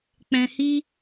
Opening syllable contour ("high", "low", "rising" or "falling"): low